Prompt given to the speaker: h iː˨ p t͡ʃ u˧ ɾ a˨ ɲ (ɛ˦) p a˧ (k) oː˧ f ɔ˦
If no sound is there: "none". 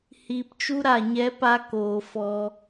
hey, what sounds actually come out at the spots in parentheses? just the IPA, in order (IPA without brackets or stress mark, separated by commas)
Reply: ɛ˧, k